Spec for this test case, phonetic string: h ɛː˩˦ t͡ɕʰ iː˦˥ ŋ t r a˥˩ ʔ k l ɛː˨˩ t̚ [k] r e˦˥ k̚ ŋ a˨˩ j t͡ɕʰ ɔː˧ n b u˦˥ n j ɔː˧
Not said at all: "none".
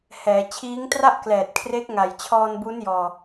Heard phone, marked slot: kʰ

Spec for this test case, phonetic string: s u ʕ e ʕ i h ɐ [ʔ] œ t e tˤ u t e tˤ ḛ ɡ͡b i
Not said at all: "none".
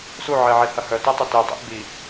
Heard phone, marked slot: h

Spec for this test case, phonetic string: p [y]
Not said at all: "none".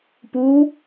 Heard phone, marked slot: u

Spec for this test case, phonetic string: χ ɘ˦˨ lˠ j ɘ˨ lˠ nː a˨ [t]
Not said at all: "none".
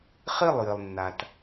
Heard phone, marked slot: t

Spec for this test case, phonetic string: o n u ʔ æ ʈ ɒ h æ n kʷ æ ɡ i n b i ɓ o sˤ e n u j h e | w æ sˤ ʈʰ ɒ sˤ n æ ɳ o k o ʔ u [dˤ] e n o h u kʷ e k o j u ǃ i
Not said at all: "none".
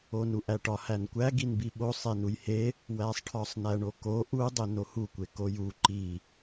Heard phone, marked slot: dˤ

